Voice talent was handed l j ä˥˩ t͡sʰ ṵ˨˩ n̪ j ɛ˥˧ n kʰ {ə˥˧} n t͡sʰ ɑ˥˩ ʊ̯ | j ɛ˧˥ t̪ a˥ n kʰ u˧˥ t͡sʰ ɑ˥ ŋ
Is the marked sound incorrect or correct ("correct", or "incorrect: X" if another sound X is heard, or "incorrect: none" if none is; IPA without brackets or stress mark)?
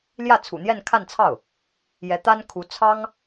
incorrect: a˥˧